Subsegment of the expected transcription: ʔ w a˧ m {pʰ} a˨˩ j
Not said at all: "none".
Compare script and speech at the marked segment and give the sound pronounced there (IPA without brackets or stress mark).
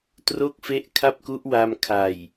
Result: kʰ